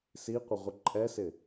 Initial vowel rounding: unrounded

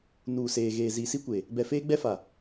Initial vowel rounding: rounded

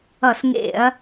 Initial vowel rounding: unrounded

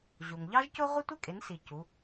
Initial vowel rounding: rounded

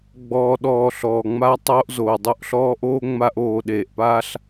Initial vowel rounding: rounded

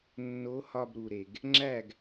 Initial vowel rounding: rounded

